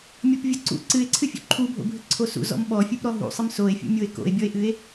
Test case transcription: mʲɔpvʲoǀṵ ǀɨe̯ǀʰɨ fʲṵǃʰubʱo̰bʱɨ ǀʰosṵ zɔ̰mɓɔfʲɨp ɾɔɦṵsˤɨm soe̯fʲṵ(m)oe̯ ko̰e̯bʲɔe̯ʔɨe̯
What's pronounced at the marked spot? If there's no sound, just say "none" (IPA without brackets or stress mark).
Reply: mʲ